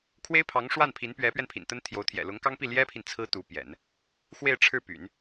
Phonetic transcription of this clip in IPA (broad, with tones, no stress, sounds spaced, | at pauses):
kʰ w e˥ ɪ̯ pʰ ɑ˧˥ ŋ ʂ w a˥˩ n pʰ i˧˥ n p ɥ ɛ˧˥ p ɥ ɛ˧ n pʰ ḭ˨˩ n t̪ ə˥ n t̪ʰ j o˧˥ ʊ̯ t̪ʰ j ɛ̰˨˩ l ʊ˧˥ ŋ k ɑ˥ ŋ p i˥˩ l j ɛ˥ pʰ i˨ n t͡sʰ ɹ̩˥ t̪ u˧˥ p j ɛ̰˨˩˦ n | x w e˥˧ ɪ̯ ʈ͡ʂʰ ɻ̩˥˩ p y̰˨˩˦ n